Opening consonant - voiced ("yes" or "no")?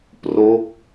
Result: no